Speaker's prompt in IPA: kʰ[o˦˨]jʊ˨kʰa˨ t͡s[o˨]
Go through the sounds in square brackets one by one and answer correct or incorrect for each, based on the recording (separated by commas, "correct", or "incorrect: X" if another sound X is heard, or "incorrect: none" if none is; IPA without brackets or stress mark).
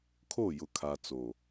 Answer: correct, correct